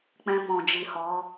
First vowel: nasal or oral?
nasal